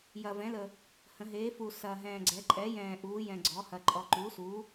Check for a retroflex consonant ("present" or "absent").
absent